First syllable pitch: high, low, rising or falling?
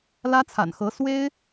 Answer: high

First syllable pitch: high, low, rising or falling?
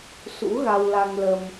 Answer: rising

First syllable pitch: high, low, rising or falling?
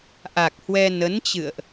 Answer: low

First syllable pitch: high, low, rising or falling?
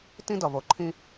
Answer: high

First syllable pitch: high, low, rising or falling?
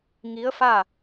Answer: rising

